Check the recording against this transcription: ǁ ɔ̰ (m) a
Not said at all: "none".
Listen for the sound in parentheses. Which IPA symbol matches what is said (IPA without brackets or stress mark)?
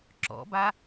b